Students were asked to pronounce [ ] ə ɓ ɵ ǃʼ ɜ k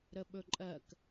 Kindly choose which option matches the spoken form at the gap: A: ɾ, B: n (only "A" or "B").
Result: A